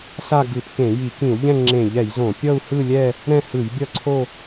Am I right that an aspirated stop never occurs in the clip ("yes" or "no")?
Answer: no